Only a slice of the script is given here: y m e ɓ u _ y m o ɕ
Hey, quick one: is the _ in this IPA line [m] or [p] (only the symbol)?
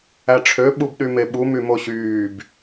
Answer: m